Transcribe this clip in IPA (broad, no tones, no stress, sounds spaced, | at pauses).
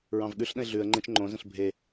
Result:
ɹ ɑ̃ v ɠ ʉ ɬ ɗ ə̃ ɪ̯ ɮ ʉ ə̯ ŋ͡ǃ ẽ t͡ʃ ŋ͡ǃ õ z ə̃ ɬ bʱ e